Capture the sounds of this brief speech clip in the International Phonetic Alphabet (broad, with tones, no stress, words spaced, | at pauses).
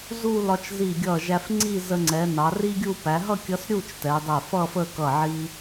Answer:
zu˥˧ lɒ˧t͡ʃzi˧˩ɡʲʌ˧˩ʒæ˧f ŋ͡ǀi˥˧ zə˧ŋ͡ǀɛ˩˧ nɑ˩˧ri˥ɡʲu˥˧ pæ˩˧ɦʌ˥˧kʲʌ˧s ɾʲu˥˧t͡ʃ tɛ˩˧dˤɛ˧˩ fʌ˥˧fə˥˧ kʌ˧˩ʕi˧